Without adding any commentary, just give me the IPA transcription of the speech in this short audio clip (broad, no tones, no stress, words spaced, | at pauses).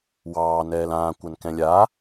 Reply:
wɑːnɛːl ãːkʷankɛ̃ lʲa